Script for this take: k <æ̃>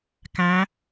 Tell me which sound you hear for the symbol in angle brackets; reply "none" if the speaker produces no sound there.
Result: æ̃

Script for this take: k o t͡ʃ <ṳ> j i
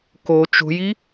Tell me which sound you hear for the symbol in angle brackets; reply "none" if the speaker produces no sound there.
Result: ṳ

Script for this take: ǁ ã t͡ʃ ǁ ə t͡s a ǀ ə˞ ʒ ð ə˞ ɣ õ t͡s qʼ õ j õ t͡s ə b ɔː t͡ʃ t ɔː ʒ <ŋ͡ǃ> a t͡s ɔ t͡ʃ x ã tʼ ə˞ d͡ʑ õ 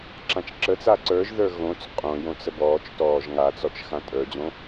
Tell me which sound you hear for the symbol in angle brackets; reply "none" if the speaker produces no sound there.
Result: ŋ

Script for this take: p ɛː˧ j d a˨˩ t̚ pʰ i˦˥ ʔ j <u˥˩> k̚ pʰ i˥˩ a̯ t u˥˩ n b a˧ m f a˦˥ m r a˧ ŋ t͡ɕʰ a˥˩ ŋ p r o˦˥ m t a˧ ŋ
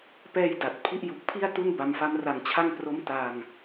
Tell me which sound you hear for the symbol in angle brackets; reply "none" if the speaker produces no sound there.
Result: u˨˩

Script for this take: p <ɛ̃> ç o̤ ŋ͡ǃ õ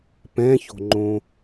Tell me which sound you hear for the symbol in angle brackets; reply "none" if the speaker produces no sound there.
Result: ɛ̃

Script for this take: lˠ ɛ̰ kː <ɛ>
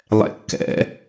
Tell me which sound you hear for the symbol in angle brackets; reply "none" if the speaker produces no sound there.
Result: ɛ̰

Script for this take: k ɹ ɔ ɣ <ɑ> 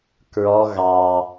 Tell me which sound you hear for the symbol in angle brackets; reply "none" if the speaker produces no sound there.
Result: ɑ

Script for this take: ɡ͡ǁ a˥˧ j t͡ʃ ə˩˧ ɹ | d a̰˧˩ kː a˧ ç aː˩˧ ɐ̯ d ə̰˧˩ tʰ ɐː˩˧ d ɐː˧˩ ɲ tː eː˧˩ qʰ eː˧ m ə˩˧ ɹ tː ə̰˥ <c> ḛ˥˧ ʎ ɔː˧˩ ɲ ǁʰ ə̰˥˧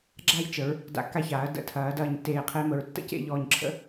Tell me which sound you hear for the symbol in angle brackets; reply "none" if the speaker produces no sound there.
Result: c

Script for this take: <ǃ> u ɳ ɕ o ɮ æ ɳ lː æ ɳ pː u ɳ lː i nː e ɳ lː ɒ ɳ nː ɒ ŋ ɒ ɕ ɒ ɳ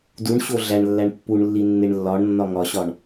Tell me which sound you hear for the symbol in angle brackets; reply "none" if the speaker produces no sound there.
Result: d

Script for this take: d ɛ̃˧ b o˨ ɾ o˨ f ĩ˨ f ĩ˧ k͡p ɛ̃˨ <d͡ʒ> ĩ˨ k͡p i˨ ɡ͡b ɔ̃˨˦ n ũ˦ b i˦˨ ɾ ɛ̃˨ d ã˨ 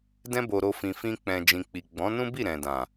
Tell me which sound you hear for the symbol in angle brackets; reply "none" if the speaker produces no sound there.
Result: d͡ʒ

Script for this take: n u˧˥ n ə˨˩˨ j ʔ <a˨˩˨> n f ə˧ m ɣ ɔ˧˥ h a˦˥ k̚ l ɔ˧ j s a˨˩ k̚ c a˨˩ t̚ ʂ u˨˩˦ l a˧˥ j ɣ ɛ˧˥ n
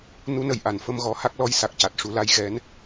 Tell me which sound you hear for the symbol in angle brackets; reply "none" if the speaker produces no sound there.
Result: a˨˩˨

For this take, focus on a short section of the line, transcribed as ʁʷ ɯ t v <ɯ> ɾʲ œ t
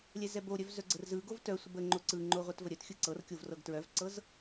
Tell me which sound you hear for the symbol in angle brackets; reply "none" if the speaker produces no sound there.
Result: ə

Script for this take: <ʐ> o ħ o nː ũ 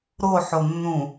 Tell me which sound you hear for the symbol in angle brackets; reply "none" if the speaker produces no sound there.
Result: ɾ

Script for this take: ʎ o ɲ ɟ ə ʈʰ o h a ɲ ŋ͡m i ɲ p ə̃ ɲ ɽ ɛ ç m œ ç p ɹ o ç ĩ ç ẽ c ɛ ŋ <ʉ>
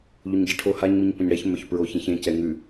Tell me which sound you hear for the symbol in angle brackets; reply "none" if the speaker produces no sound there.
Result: ʉ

